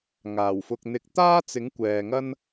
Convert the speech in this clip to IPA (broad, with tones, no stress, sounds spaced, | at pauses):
ŋ aː˨˩ w f ʊ˧ k̚ n̪ ɪ˧ k̚ t̪ aː˥ t͡s ɪ˨˥ ŋ kʷ ɛː˨ ŋ ɐ˥ n